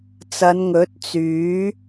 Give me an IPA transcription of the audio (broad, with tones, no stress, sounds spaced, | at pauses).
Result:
t͡s ɐ˨˧ n ŋ ɵ˨˥ t̚ t͡s yː˨˥